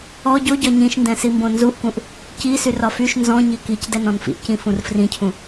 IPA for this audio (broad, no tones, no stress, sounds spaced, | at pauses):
ɔ ɟ o ɟ ɒ ɲ ĩ ʃ n d ɛ̃ s i m b õ n z u ʔ k ũ ʔ | c i s y r ɒ f y ʃ n z ɔ̃ ɲ i k i c d ɛ n ɔ̃ n f ḭ ʔ c ĩ f ũ r f r ĩ cʰ ũ